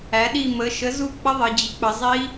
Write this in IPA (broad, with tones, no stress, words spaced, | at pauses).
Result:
æ˩˧ɗi˦˨ mə˩˧ʃə˩˥ zu˦˨k͡pə˦˥ ðˤə˩˧ d͡ʑi˩˥ k͡pə˩˧zˤi˦˥